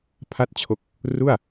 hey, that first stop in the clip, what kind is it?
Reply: aspirated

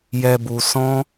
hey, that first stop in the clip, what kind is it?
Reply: plain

